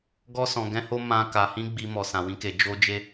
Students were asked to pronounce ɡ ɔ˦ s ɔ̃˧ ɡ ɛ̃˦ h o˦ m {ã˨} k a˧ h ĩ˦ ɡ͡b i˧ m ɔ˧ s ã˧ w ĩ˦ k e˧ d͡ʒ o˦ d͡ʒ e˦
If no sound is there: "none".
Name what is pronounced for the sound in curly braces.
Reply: ã˦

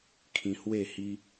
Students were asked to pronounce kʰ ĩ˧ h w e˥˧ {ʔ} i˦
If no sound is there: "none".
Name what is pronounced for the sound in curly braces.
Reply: h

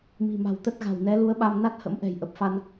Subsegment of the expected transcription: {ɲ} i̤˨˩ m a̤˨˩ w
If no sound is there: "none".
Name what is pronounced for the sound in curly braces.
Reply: m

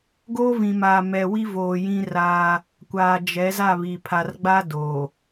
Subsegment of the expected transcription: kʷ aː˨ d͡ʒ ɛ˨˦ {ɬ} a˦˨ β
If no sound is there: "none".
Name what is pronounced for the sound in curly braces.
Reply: z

